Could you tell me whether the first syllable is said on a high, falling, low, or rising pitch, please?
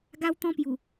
high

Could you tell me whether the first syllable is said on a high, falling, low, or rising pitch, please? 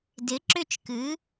rising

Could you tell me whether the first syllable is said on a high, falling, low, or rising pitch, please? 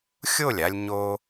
falling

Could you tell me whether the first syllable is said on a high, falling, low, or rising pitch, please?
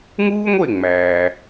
high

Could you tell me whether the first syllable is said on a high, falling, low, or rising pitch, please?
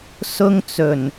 high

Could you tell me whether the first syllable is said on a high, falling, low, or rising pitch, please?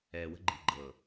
low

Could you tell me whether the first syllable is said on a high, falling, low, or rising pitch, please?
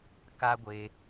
high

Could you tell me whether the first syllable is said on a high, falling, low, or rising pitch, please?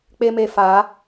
high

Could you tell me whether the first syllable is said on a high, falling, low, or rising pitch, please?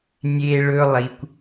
high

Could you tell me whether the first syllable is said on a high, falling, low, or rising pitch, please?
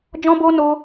high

